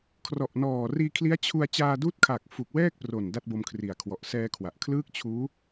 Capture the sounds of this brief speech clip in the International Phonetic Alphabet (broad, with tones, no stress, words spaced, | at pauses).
kʰrɔ˨˩ʔnɔː˨˩ riː˧kʰli˦˥a̯ t͡ɕʰu˧a̯ t͡ɕaː˧duː˦˥t̚kʰa˨˩k̚fu˨˩k̚ wɛː˥˩k̚pro˨˩n da˥˩t̚bo˧mkʰri˨˩a̯ kʰwɔ˨˩ʔ sɛː˧kʰwa˨˩ʔkʰlɯː˥˩k̚ t͡ɕʰuː˦˥